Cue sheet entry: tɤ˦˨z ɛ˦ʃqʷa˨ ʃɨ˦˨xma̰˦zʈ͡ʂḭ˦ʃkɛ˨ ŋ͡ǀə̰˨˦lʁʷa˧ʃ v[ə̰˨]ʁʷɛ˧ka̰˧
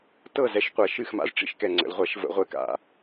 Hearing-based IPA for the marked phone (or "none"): ə̰˧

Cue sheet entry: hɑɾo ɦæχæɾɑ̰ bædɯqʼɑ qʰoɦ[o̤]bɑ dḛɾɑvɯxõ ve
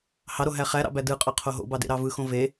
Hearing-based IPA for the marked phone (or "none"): o̰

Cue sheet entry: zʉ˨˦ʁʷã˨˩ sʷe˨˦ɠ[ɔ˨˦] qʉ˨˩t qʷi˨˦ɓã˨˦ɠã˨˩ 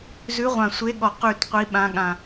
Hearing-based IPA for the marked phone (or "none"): ɔ˨˩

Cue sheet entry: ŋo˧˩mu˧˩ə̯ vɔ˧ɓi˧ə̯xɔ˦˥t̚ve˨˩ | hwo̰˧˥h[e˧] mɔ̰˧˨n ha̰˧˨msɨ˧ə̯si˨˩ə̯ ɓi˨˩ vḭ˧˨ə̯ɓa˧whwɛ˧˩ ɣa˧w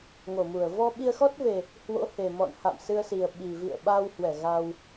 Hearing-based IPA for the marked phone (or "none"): e˨˩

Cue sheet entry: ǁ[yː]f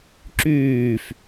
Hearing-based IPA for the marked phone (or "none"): yː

